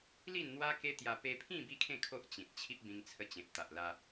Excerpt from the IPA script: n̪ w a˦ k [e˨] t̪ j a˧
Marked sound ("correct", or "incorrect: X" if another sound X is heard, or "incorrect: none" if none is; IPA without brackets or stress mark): incorrect: e˦